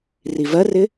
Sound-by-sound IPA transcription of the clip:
rivɜrɪ

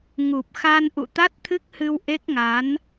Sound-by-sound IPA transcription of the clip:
ŋu˨˩p̚xa˧n ʔṵ˧˨t̪a˦˥t̚t̪ʰɨ˦˥k̚hɨ˧w ʔe˦˥k̚ŋa˨˦n

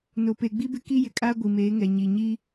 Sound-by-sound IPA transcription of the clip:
no˨pe˨ ɡ͡bi˦bɪ˦ ki˦jɪ˨kʼaː˦ ɡʷi˨meː˨˦ŋɛ˨ ɲi˨ɲi˦

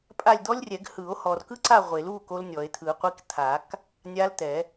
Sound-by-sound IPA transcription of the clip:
pʼa˦˨lʲd̪ɔ˦˥lʲrʲɛ˨˩˦ɡ hɯ˨˩˦o̯hɔ˨r kɯ˦˥ǀa˦˨ ʁʷe˨˩˦l u˦˨ ko˦˥lnʲɔ˨˩˦e̯ t̪ʰɯ˨˩˦qʷi˦˥k t̪ʰa˨˩˦k | nʲa˦˥lt̪ɛ˨˩˦

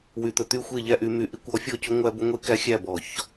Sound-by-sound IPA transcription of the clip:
wy˧˩˧t̪ɵ˧˩˧t̪y˥˨ xʷe˥˨ʎæ˦ʔy˨˦my˨˦ ʔi˧˩˧kʷɔ˨˦ fʲɔ˥˨cɵ˦ŋʷæ˦ bɵ˦ŋʷe˦ kæ˦xʲæ˥˨bɔ˧˩˧ç

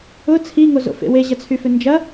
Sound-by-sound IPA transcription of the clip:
ʊ t͡sʰiŋozo̰fḛ weʑɐt͡sʰyfʏ nd͡ʒɐ

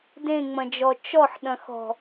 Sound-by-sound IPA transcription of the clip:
dẽŋ͡mɐ̃d͡ʒɔ t͡ʃɔħɗɐ̃xɔ̤

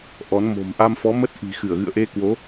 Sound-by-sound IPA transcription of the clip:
ʔɔ˨˦nmo̤˨˩m ʔa˧mfɔ˨˦mə˦˥t̚ ʔi̤˨˩ xɨ˧˩ə̯ɣɨ̰˧˨ə̯ʔe˧kwo˨˦

